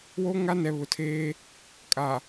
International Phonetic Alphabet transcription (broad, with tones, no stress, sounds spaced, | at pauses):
w o˦ ŋ a˦ n ɛ˨ β ʊ˨ tʰ eː˦ | kʼ a˨